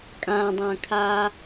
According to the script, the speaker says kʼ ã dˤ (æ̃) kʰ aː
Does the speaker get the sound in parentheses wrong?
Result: yes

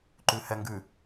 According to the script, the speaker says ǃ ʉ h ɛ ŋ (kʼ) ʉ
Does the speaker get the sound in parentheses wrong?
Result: yes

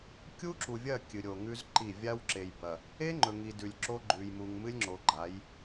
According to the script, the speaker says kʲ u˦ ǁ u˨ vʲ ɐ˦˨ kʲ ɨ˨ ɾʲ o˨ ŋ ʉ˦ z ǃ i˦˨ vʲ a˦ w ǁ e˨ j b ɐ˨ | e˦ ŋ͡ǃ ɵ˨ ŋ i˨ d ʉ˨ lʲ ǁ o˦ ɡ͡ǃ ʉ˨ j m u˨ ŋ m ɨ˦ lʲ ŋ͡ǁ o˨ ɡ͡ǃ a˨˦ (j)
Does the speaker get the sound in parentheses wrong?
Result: no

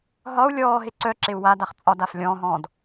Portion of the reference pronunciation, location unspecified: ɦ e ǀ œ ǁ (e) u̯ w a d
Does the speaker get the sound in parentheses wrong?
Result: no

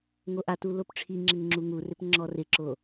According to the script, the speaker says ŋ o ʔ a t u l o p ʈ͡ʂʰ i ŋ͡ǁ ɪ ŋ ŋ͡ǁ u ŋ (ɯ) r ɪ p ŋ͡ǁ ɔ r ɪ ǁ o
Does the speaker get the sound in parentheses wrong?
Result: yes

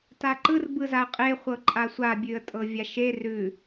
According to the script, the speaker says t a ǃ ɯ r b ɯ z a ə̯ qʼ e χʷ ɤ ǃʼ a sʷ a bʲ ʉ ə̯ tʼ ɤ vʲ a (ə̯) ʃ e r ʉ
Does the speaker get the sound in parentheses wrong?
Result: yes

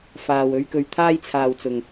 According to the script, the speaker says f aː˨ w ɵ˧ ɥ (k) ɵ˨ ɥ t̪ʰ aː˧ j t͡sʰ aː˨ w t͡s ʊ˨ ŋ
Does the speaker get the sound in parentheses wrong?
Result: no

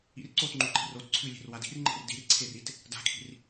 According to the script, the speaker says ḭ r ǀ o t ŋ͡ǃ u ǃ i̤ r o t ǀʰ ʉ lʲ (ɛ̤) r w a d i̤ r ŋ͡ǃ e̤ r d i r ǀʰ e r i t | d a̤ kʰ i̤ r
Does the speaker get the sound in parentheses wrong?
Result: yes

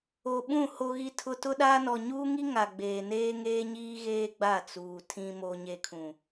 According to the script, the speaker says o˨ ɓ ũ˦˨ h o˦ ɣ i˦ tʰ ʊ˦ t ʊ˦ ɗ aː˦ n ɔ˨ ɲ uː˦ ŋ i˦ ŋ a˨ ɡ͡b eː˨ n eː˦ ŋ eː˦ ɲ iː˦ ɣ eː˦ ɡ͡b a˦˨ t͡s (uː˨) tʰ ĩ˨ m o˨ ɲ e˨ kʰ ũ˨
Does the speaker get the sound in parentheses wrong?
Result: no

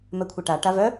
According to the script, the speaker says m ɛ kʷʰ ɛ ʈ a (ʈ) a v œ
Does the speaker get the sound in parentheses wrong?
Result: no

